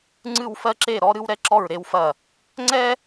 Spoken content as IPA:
ŋ͡ǀ ɨ˧˩ w f ɜ˧ ǁ e˧˩ ɾ ɔ˧ ɾ ɨ˧ w ɾ ɛ˧ ǁ ɔ˧˩ ɹ ɾ e˧ w f ɐ˧˩ | ŋ͡ǀ ɛ˧

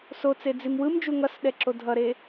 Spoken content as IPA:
s o t͡s e d͡z i m w ɯ m d͡ʒ u ŋ ʌ s ɗ ɛ ǁ o dʱ ʌ ɾ e

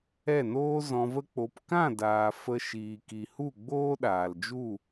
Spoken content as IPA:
ɛ˦˨ n oː˦ z ɔ̃˧ v ə˦ k͡p o˧ p k ã˦˨ d aː˨ f ə˧ ʃ iː˨ k i˨ h u˦˨ ɡ͡b oː˦ ɗ aː˨ l d͡ʒ u˦˨

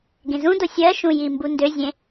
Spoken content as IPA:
ɡ ẽ z ũ d o sʲ ɜ ʃ ũ j i m b u n d ø zʲ ẽ

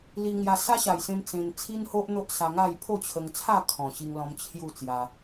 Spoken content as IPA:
l i˧ ŋ j a˧ s a˦ ɕ a˨˩ j s ẽ˧ m t͡s ẽ˧ n t͡sʰ i˦ n h o˦ ʔ n̪ o˦ ʔ s a˧ ŋ a˥˧ j pʰ o˥˧ t͡ɕʰ ə˧ ŋ t͡sʰ a˥˧ kʰ ɔ̃˨˩ ɕ i˧ ŋ l ɔ̃˧ m t͡ɕʰ j u˥˧ t͡s j a˧

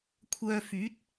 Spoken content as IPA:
kʷʰ œː˧ f yː˨˥ t̚

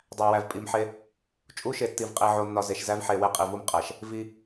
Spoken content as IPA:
dˤ æ˨ w æ˨ v pʼ i˨ m ħ e˦ | t͡ʃʼ u˦ ʃ e˨ tː i˨ v qʼ i˨ ʕ o˨ nː ɒ˨ z e˨ ʃ z æ˦ v ħ e˨ w e˦ qʼ i˨ v u˦ m qʼ æ˨ ʃ | v i˦

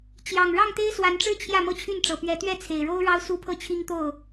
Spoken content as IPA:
t͡ɕ j ɑ˨˩ ŋ ɻ ɑ˥˨ ŋ t̪ e˦ ɪ̯ s w a˨˦ n ʈ͡ʂ ɻ̩˦ t͡ɕʰ j ä˥˨ m ɤ˥˨ t͡ɕʰ y˥˨ n ʈ͡ʂ ɤ˨˩ p ɥ ɛ˨˦ t̪ ɥ ɛ˥˨ t͡sʰ e˨˩ ɪ̯ ɻ o˦ ʊ̯ ɻ ɑ˦ ʊ̯ s u˦ pʰ ɤ˥˨ t͡ɕʰ i˦ ŋ t̪ o˥˨ ʊ̯

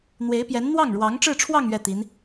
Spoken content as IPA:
n̪ w e˧˥ ɪ̯ p j ɛ˧˥ n n̪ w ɑ˥˩ ŋ ɻ w ɑ˧˥ ŋ ʈ͡ʂ ɻ̩˥˧ ʈ͡ʂʰ w ɑ˥˧ ŋ ɥ ɛ˥˩ t̪ i˧˥ n

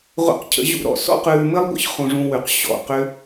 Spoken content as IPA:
ʁʷ ə̰˦ q cʰ ə̰˦ ʑ ṵ˦ ɾ ɔ̰˨ s ɔ̰˦ q ʉː˧ m ɘ˦ lˠ ɡʷ ə̰˦ ç χ ũ˧ ʐ ũ˧ w ʉ˨ q ɕ ɔ̰˨ q ʏ˦

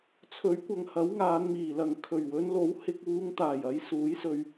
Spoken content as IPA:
t͡sʰ ɵ˨˥ ɥ kʷ ɐ˨ ŋ h ɐ˨˥ w ŋ aː˨˧ n m iː˨˩ l ɐ˨ ŋ kʰ ɵ˨˩ ɥ w ɵ˨˧ n l o˨˥ w h ɪ˧ k̚ w uː˨˧ ŋ t̪ aː˨˩ j ɐ˨˧ j s uː˨˥ j s ɵ˧ ɥ

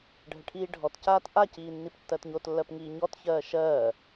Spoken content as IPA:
ɖʱ ə ʈʰ iː ɖʱ ɔ t c aː t ʔ a c iː nː i p tː ɜ t ɲ o t lː ɜ p ŋ iː ɲ ɔ t ç ɜː ʃ ɜː

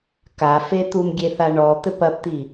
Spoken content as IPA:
k a f e t̪ u m ɡʲ e θ a ɳ ɔ t̪ ɘ p ɐ p t̪ i

